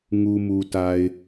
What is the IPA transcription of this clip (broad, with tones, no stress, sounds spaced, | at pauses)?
ŋ u˨ m u˨ t a˨ ɪ̯